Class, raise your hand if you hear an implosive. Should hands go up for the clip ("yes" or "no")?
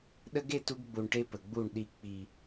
yes